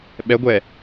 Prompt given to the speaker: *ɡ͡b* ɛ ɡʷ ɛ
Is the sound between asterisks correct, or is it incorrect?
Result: incorrect